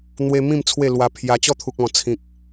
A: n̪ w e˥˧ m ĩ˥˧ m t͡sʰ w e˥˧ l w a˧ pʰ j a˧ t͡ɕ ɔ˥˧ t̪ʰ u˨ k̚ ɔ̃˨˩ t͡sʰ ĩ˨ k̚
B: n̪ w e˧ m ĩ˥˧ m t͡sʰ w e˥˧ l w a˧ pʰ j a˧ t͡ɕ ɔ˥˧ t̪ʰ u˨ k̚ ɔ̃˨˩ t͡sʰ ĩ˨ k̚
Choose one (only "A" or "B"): B